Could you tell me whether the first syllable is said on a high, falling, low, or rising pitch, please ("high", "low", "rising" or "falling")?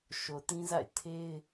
low